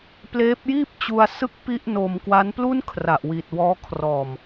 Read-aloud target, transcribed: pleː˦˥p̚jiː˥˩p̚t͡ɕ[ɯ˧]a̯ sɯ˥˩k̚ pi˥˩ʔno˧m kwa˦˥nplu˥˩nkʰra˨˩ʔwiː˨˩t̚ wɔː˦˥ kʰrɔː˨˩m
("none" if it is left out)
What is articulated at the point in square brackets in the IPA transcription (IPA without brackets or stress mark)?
u˧